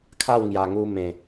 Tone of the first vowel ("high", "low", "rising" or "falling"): falling